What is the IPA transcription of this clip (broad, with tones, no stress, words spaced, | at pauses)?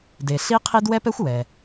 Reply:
de˩ ɬi˥ qʰi˥d wɛ˥pɛ˥xʷ wɛ˩